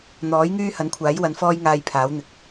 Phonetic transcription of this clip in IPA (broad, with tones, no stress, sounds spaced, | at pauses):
n̪ ɔː˨˥ j ŋ yː˥ h ɐ˨˥ n kʷʰ aː˨˥ j w ɐ˨˧ n f ɔː˥ j ŋ aː˧ j pʰ aː˨˥ w n̪ ɪ˨ k̚